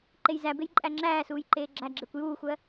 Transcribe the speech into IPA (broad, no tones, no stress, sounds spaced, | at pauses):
ǃ e j z æ b e j ǃʼ æ ŋ͡ǁ æː s uː j ǃ eː ɡ͡ǁ æ ɡ͡ǁ e kʷ j uː xʷ ɜ